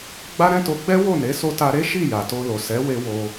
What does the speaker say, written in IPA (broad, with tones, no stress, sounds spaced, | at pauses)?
ɡ͡b a˦ ɾ ɛ̃˦ t o˧ ɡ͡b ɛ˦ w o˦˨ n e˨˦ s o˧ t a˧ ɾ e˦ ʃ i˦˨ j a˨ t o˧ l o˨ s ɛ˨˦ w e˧ w o˧